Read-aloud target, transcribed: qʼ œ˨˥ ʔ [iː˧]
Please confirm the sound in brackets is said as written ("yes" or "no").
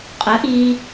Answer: yes